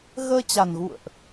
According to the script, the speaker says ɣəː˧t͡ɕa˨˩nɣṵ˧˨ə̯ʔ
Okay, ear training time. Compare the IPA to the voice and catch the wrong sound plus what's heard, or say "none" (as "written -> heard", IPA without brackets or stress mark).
none